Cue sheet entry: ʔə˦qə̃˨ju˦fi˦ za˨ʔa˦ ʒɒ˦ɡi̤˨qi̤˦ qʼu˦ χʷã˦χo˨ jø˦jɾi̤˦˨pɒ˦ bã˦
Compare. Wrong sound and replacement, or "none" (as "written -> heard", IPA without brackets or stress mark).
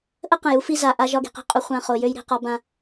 p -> q